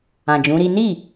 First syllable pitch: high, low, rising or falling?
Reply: low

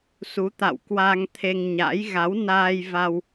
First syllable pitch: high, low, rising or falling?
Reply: rising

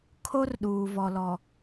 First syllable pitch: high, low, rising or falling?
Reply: high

